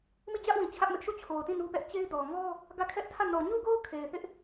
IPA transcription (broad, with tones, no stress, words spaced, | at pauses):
mi˦˨d͡ʑä˦ʔwĩ˨ t͡ɕʰä˦ʔmɪ˦ʔ ʃu˦˨ t͡ɕʰo˨ʊ̯tĩ˦˨ nu˦pɛ˦ʔ t͡ɕe˦ɪ̯dɔ˨ ŋɔ˦ | ɡä˦˨kʰɛ˦ʔtʰä˦˨ nɔ˨ɲu˦ɡo˦ʊ̯ kʰe˨ɪ̯θɪ˦ʔ